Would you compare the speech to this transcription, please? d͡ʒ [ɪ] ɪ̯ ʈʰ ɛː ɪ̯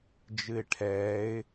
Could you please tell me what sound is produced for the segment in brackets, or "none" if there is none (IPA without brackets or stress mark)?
ɨ